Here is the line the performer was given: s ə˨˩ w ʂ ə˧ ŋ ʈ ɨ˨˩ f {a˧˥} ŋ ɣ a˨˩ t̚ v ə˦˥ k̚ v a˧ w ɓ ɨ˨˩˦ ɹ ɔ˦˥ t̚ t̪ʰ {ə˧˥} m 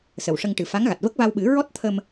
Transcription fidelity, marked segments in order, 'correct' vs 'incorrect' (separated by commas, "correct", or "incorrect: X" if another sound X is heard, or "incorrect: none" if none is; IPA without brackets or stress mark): correct, incorrect: ə˧